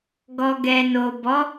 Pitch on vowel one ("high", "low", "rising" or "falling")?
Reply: low